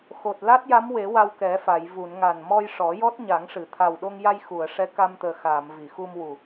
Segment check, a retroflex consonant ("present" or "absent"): present